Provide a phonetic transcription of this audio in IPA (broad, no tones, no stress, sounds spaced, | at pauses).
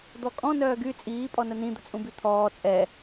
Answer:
d̪ ɔ kʼ ɔ̃ n œː ɡ y t͡sʼ iː pʼ ɔ n ə n ĩ d̪ ə t͡sʼ ũ b y t̪ʰ ɔː t͡sʼ ɛ